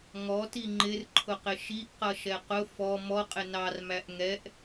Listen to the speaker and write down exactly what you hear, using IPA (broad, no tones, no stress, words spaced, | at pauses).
ŋɔti ŋ͡ǃɪrǃʰʊqɪ ʃiʔqʌʃɛ qʊ fɔ mɔqʼɪ nɑrmæʔ ŋɛʔ